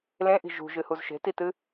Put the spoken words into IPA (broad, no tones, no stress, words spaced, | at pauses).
lẽʔi̤ ʒṳʒɨhuz ʃe̤titɨ